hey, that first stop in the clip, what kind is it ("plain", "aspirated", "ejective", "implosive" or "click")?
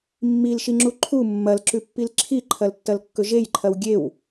click